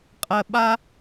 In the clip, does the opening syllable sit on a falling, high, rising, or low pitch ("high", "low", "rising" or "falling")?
low